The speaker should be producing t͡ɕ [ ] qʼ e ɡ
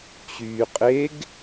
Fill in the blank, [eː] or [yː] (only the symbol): yː